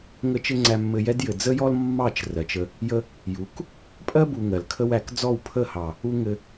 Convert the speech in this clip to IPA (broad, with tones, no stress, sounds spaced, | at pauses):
ŋ ə˦ t͡ʃ ɘ˦ ŋ͡ǀ æ˧ mː ɘ˧ j ɛ˦ d j ɘ˨ d͡z ə˦ j ɔ˦ l mː ɑ˦˨ t͡ʃ r ɜ˨ t͡ʃ ə˧ | j ə˦ | j u˨˦ k | pʼ ɜ˦ b u˨ ŋ ɜ˨ l kʰ ə˦ w æ˧ k d͡z ɔ˦˨ w pʰ ə˦˨ h ɑ˨ | u˦ ŋ ɘ˧